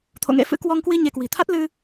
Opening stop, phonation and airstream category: aspirated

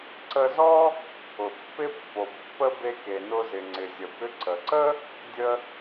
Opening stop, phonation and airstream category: click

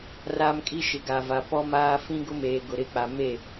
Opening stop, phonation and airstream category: ejective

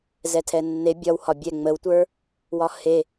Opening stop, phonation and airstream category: aspirated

